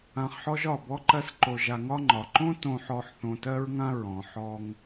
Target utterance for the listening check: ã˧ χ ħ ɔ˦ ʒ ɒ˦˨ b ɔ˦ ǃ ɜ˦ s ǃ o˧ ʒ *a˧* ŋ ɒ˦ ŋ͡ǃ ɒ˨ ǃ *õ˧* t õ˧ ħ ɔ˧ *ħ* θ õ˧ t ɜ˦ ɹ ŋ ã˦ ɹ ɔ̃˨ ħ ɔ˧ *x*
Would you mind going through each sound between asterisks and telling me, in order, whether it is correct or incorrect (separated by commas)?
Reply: correct, incorrect, correct, incorrect